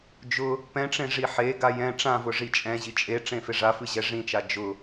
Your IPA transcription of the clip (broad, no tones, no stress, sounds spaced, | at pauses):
d͡ʒ ʊ | p ɛ̃ ʈ͡ʂ ẽ ʐ i ħ e ɡ a j ɛ̃ ʈ͡ʂ ã v ʊ ʐ i t͡ʃʼ ɛ̃ ʑ i t͡ʃʼ e ʈ͡ʂ ẽ f e ʐ a f ɨ ʑ ɛ ʐ ĩ t͡ʃ a d͡ʒ ʊ